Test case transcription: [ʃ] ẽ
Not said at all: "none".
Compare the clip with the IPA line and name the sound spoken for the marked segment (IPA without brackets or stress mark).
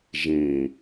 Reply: ʒ